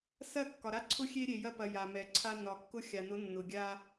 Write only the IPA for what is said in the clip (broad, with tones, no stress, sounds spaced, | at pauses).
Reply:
s ɐ˦˨ kː ɒ˨ ɾ a˦ ǀʰ ʊ˦ xʲ e˦ ɾʲ e˨ j ɐ˦ p ɐ˨ j a˨ m ɛ˨ ǀʰ a˦ n ɒ˨ kː ʊ˦ xʲ a˨ n ʊ˨˦ nː ʊ˨ ɡʲ a˦